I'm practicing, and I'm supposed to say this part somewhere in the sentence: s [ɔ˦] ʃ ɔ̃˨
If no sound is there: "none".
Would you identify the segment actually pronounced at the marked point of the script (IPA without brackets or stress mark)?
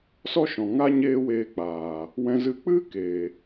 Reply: ɔ˦